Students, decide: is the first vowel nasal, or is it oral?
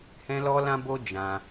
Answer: nasal